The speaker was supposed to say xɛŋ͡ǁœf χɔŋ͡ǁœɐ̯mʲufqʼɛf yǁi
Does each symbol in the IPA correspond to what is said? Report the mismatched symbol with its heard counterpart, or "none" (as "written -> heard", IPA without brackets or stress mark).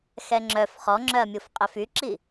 none